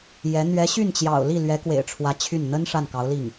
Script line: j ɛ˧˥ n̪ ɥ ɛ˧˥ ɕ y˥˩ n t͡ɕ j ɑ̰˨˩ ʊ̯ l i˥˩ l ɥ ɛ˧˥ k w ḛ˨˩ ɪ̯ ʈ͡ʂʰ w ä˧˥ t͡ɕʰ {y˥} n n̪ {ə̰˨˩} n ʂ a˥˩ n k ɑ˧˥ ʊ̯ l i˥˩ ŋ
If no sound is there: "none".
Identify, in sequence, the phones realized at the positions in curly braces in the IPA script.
y˥˩, ə˥

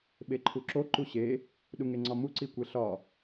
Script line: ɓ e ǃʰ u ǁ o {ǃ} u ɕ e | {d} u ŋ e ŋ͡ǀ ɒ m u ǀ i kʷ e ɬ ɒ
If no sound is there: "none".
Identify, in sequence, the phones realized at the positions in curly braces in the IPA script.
ǃ, ɗ

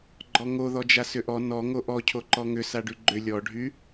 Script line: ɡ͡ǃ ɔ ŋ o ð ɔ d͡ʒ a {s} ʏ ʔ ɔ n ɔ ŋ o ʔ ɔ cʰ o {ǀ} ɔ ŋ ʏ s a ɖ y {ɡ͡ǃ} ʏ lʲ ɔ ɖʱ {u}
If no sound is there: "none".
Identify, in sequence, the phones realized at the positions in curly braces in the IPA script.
s, ǃ, ɡ͡ǃ, y

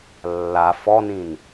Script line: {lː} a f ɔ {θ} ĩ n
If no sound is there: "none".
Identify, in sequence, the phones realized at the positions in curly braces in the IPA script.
lː, n

